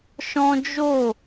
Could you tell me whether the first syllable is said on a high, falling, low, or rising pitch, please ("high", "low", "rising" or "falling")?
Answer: high